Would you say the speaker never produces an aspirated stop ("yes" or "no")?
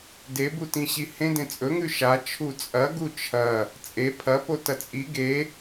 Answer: no